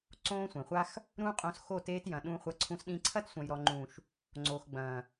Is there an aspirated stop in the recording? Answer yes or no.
yes